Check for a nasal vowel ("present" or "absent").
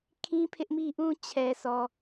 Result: present